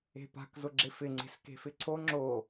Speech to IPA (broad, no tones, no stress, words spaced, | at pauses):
e̤pa̤k zʊɡ͡ǁɪfɪ ŋ͡ǀe̤ske̤fɪǀʰo ŋ͡ǁo